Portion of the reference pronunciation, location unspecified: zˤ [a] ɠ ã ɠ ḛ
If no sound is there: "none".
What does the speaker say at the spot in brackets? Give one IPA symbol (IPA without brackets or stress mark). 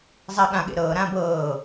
a